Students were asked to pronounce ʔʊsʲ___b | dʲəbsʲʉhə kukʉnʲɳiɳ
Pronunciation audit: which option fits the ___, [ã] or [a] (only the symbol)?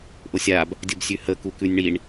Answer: a